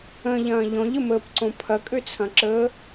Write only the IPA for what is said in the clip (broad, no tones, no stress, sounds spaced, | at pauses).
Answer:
ə̃ ʎ ɐ̃ː ʎ ɔ̃ ʎ ə m əː p ǀ õ pʰ ɐ kʼ ø t͡sʰ ɐ̃ ǁ əː